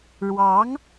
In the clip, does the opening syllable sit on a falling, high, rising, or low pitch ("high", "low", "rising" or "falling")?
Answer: rising